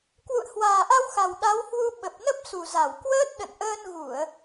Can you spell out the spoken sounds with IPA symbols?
k w ṵ˧˨ ə̯ h w aː˨˩ ʔ a˧ w x a˨˩ w ɗ a˨˦ w h w u˧ ɓ ə˨˩ p̚ n ə˦˥ p̚ s u˨˩ z a˧˩ w k w əː˦˥ t̚ ɗ ə̰˧˨ n ʔ əː˧ n ɣ u˧˩˨ ə̯

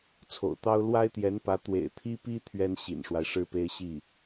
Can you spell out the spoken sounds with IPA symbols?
t͡sʰ o̰˨˩ ʊ̯ t̪ ɑ˥ ʊ̯ l w a˥ ɪ̯ t̪ j ɛ˧˥ n p ä˧˥ t̪ w ḛ˨˩ ɪ̯ t̪ʰ i˥ p i˥ t̪ʰ ɥ ɛ˥ n ɕ ḭ˨˩ n ʂ w a˦ ɪ̯ ʂ ɻ̩˥ p e˥ ɪ̯ ɕ i˥˩

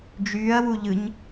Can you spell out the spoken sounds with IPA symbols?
d͡ʒ yː ɐ̯ w u ʎ ɯ ɲ

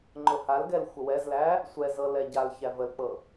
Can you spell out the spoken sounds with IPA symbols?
ŋ͡ǃ ʊ h a l ɡ ɛ l xʷ ə w ɛ z l æ | sʷ ɛ z ɤ l ɛ ɟ a l ç æ v ə l k͡p ɤ

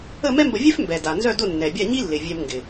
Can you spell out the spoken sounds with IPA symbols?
ə˥˨ m ɛ˥ m b ə˧ vʲ œ˥ f m b ɛ˨˩ d a˨˩ n z œ˥˨ d ʊ˥˨ nː ɛ˨˩ bʲ a˥˨ ɲ i˥ lː ɪ˨˩ vʲ ɛ˧ m ŋ ɡ ɪ˨˩

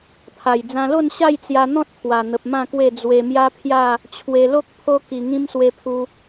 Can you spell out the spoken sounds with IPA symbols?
pʰ a˨˩ j d͡z ã˧ l o˥˧ n ɕ a˥˧ j t͡s j a˧ n̪ ɔ̃˦ t̚ pʰ w a˨˩ n̪ ə˨ p̚ m ã˥˧ k w e˥˧ d͡z w e˧ m j a˦ pʰ j a˥˧ | t͡ɕʰ w e˧ l o˦ k̚ pʰ o˦ k i˧ ŋ ĩ˦ m s w e˧ pʰ u˧

